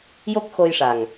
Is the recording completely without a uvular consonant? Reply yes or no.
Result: yes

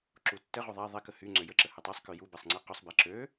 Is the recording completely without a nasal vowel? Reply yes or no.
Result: yes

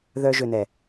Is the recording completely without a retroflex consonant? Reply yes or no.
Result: yes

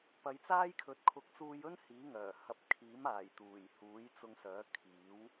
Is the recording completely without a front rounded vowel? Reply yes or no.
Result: no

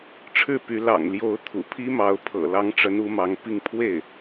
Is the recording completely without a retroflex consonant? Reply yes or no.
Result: no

